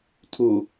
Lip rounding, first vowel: rounded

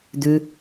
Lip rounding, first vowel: rounded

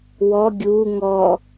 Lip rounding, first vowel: rounded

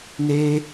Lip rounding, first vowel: unrounded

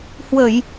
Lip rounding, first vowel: unrounded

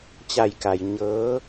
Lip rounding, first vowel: unrounded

